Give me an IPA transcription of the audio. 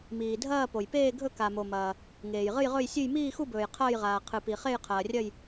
m iː˨ dʱ ɐː˥˧ p o˨ j p eː˥˧ ɡʱ ɵ˥˧ k a˨ m o˨ m ɐː˨ | ŋ eː˨ j ʁ ɨ˥˧ j ʁ ɵ˥˧ j sʲ ʉ˥˧ j m iː˥˧ x u˥˧ b ɵː˨ j qʰ ɐː˥˧ j ʁ aː˨ qʰ ɨ˨ p i˨ χ e˥˧ j qʰ ɐː˨ rʲ ɐ˥˧ j

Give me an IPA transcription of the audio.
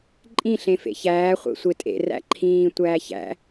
ǃʼ ĩ ɬ ẽ f ḛ ç æː χʷ ḛ sʷ e tʼ ḛ r æ̰ ǃʰ ĩː tʷ æː ç æ̰

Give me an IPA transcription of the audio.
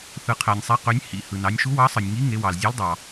θ ɯ˩ qʰ æ˩ nʲ sˤ e˩˧ q ø˩˧ nʲ h ḭ˩ h ɯ˩ n ɑ˩˧ nʲ ʃ u˨˥ w ɑ˨˥ sˤ ɯ˩ nʲ ŋ i˨˥ ŋ e˩˧ w ɑ˩ l zʲ e˨˥ l dˤ ɑ˩

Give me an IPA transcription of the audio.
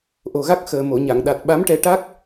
ʔ o˨˩ ɣ a˦˥ k̚ x əː˨˩ m o˨˩˨ ɲ a˨˩˨ ŋ ɗ a˨˩ t̚ ɓ a˧˥ m ʈ ɛ˧ ʈ a˦˥ k̚

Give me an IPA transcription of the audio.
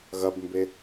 ɣ ɐ b m b e

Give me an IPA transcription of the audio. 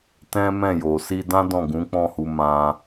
t ɛ̃˦ m ɛ̃˦˨ j o˨ s i˧ d ã˦ d ɔ̃˦˨ ɡ ũ˨˦ k͡p ɔ̃˦˨ h u˧ m ã˧

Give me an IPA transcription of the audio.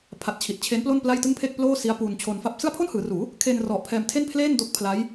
pʰ a˨˩ t̚ t͡ɕʰ i˨˩ t̚ t͡ɕʰ e˦˥ n p l o˥˩ n p l a˥˩ j t ɯ˥˩ ŋ pʰ e˥˩ k̚ p l oː˥˩ s i˦˥ a̯ p u˧ n t͡ɕʰ o˧ n f a˦˥ p̚ s ɯ˥˩ a̯ pʰ o˥˩ n h ɯː˩˦ r uː˩˦ | kʰ e˧ n r ɔ˨˩ ʔ pʰ ɛː˧ m tʰ e˥˩ n pʰ l eː˥˩ n d o˦˥ k̚ pʰ l a˦˥ j

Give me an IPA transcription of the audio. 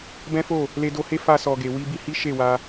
b ɛ̃˦ f o˦˨ | l e˧ d o˧ h e˦ f a˧ s ɔ˨ ɡ e˨ w i˧ b i˧ h i˦ ʃ e˦˨ w a˧

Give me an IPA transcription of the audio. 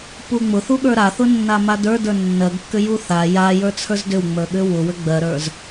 p u ŋ͡m ʊ θ u ɠ ə˞ ɾ a θ ʊ nː a m a d ə˞ d ə˞ nː ɜ ɡ kː ʏ j u θ a j a j ə˞ t͡sʰ ə˞ z d ʏ w ŋ͡m ə˞ ɠ ʏ w ʊ w ʏ ɡ͡b ɜ ɾ ə˞ z

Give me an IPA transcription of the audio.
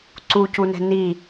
ǀ u c u n ɛ̤ n i

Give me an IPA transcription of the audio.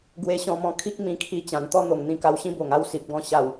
ɡ w e˧ ɕ ɔ̃˧ m ɔ̃˧ kʰ i˦ k̚ m ĩ˧ kʰ i˧ t͡ɕ ã˨˩ n t̪ ɔ˦ n̪ o˨˩ ŋ n̪ ĩ˧ k a˧ w ɕ ĩ˦ b o˨˩ ŋ a˦ w s i˨ p̚ ɡ ɔ̃˥˧ ɕ a˨˩ w

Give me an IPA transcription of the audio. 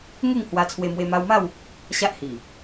ŋ e˥˧ ŋ h w a˧ t͡sʰ w e˧ m w e˧ m a˧ w m a˥˧ w | ɕ a˦ ʔ h i˨˩

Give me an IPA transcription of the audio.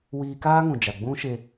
w iː˧ k aː˦ ŋ ũ˨ d͡ʒ a˨ ɡ͡b ũ˦ ʃ e˧

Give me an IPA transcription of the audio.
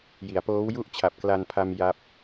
j i˩˦ a̯ p oː˦˥ w j u˥˩ ʔ t͡ɕʰ a˨˩ p̚ k l a˧ n pʰ a˧ m j a˦˥ p̚

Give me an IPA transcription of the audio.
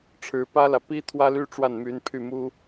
ʈ͡ʂʰ ɻ̩˧˥ p ä˥ l ä˨ p i˥ t̪ʰ w ä˥ l y˥ ʈ͡ʂ w a˥˩ n m y˧˥ n pʰ y˥˩ m u˥

